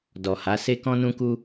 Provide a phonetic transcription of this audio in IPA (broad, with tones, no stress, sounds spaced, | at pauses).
d ɔ˨ h a˨˦ s e˦ k ɔ̃˦ n ũ˦ k u˦